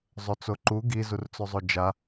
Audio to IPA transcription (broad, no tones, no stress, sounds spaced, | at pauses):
zˤ ɵ t͡s o ǃ u ɡ i z u r t͡s ɵ zˤ o d͡ʒ a